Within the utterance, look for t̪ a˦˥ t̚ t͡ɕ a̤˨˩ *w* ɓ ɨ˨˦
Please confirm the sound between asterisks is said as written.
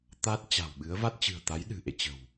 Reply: yes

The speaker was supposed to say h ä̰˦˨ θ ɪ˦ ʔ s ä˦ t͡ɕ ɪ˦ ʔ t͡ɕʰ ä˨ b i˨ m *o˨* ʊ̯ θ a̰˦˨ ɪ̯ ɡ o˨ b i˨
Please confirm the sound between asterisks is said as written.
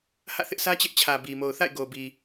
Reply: yes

